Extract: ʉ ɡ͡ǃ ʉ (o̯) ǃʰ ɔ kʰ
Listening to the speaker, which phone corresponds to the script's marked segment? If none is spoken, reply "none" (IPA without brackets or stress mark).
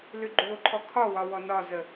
o̯